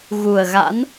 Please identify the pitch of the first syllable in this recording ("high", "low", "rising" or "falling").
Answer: low